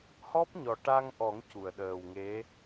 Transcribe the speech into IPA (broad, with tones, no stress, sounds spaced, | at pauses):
h ɔ˦˥ p̚ ɲ ɔ˨˩ ʈ a˧ ŋ ʔ ɔ˨˩˦ ŋ c u˨˩˨ ə̯ ɗ əː˨˩ w ŋ e˧˥